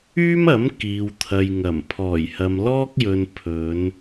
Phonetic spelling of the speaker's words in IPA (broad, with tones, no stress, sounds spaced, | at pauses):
yː˥ m ɐ˨˥ m k iː˨ w t̪ʰ ɐ˨ j ŋ ɐ˨˩ m pʰ ɔː˨˩ j h ɐ˨ m l ɔː˥ k̚ j ɵ˨ n pʰ ɵ˨˧ n